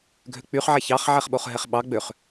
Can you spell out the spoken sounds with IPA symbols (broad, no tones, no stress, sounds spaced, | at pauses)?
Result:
ɡʱ ø k͡p y χ ʕ ɛ ç ɑ χ ʕ ɛ χ ɓ o χ ɦ ɛ χ ɓ ɑ ɡ͡b ø χ